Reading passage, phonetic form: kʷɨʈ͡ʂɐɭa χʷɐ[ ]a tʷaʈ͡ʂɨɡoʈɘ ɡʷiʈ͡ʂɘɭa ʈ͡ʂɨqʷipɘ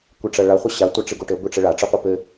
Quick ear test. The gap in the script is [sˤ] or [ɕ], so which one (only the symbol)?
ɕ